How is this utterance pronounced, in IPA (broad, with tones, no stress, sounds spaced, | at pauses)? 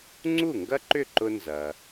ŋ͡ǀ u˥˩ ŋ ɡ ɐ˥ ǃ ʏ˥˩ ǃ ʊ˧ n z ɐ˩